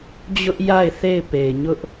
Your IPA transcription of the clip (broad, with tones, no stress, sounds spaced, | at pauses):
d͡ʑ ʊ˦ ʔ j a˦˨ ɪ̯ θ e˦˨ ɪ̯ p e˨ ɪ̯ ɲ ʊ˦ ʔ